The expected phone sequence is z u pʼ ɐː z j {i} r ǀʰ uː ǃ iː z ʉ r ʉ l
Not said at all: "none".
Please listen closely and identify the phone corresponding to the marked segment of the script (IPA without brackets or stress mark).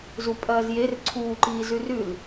e